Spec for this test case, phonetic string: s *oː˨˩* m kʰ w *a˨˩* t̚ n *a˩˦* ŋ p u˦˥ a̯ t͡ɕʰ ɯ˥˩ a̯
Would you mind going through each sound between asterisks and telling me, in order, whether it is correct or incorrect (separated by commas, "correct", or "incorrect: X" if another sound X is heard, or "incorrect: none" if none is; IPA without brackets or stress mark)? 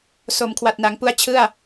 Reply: incorrect: o˨˩, correct, correct